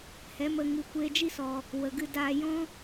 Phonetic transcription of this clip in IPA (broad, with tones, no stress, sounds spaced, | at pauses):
h ɛ˨˦ m ə˧ ŋ ɨ˧ kʷ eː˧ d͡ʒ i˦ s ɔ˨ | w ə˨ ɡ ɨ˧ d aː˧ j ɔ̃˦